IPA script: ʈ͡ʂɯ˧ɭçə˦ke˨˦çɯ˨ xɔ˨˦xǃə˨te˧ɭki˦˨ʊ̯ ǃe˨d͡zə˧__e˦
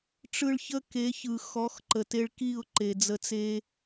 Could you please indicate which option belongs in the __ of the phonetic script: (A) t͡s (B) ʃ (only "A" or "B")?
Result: A